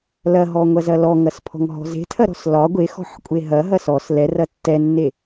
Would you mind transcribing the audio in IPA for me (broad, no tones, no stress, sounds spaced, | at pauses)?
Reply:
l ɐ ɦ ɔ ŋʷ ɐ z ɐ l ɔ ŋ ɐ s pʰ ɔ̤ ŋ ɦ ɔ̤ z e̤ tʰ ɐ ɾ ɔ̤ s l ɒ ɡʷ e x ɔ̤ ħ kʷʼ e ɦ ɐ ɦ ɐ s ɔ s l ɛ r ɐ tː ɛ nː e